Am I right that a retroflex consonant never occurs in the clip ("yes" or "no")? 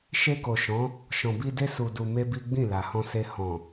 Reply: yes